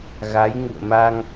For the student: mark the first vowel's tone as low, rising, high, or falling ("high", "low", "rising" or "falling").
rising